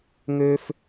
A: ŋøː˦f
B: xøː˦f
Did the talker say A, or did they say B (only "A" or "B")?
A